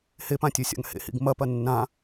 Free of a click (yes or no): yes